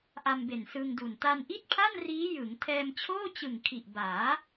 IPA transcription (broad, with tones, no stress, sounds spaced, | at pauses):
ʔ a˧ m b e˨˩ n s ɯ˧ ŋ d u˨˩ n t a˧ n ʔ i˥˩ t̚ pʰ a˥˩ n r iː˦˥ j ɯ˩˦ ŋ tʰ ɛː˧ m t͡ɕʰ oː˥˩ t͡ɕ ɯ˨˩ ŋ kʰ i˨˩ ʔ b aː˩˦